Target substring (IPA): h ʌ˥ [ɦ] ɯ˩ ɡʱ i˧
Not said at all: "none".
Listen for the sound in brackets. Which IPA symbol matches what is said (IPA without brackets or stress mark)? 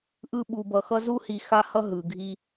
ɦ